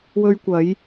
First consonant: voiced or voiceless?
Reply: voiced